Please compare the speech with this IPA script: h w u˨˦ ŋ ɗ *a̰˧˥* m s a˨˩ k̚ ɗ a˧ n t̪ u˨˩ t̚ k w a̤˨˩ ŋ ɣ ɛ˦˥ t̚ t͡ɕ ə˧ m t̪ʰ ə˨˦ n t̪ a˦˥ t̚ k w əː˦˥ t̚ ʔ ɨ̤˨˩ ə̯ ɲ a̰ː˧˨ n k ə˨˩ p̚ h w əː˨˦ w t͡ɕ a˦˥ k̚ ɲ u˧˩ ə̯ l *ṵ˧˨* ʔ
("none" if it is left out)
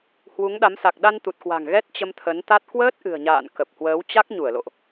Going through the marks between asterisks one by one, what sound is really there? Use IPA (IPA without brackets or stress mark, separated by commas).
a˨˦, o̰˧˨